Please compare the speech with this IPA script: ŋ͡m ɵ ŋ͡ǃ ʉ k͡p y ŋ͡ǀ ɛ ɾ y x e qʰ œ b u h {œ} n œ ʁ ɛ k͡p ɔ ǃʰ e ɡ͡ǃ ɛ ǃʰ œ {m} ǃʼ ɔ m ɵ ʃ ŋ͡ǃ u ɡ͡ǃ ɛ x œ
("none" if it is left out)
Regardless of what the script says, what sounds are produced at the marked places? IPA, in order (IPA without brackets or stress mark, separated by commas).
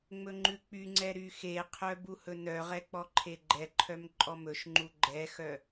ɵ, m